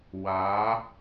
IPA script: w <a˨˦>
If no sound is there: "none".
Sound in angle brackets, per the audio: a˨˦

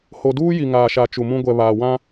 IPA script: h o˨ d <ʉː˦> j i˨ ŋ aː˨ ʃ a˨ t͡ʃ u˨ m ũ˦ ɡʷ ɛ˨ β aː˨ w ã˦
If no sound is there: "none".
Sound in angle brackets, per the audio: uː˦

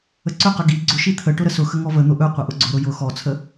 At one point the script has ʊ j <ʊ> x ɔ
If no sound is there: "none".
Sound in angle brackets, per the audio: ʊ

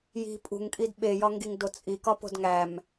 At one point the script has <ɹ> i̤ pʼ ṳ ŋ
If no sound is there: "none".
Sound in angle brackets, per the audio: j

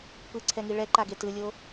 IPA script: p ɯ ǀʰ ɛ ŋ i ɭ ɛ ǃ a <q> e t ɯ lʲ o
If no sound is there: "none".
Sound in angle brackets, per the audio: ɡ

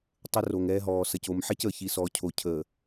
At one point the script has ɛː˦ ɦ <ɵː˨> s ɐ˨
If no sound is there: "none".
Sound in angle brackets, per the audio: ɔː˨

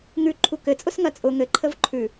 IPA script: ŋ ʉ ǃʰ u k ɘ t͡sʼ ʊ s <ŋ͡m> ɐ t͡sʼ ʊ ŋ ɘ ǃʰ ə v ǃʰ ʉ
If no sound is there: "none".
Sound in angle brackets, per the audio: ŋ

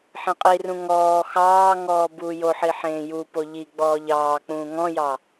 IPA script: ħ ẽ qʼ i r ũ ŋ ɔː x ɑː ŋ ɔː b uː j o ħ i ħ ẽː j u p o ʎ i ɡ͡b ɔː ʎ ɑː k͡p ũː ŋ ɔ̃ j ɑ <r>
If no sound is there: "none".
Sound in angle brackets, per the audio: none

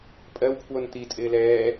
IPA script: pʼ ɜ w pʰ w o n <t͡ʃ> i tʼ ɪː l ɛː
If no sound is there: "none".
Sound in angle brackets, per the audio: t̪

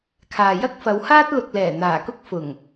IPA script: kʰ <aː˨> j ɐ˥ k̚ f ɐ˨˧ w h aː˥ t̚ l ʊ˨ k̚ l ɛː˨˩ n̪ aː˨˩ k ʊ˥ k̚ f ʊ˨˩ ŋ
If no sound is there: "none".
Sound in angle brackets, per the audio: aː˨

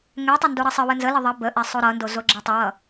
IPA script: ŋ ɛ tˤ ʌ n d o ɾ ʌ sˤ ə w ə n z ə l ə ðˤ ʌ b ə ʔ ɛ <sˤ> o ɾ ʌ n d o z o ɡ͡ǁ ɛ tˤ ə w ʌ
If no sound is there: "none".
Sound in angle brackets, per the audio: sˤ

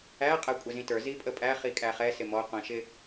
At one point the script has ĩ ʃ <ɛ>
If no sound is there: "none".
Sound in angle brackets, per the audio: ɪ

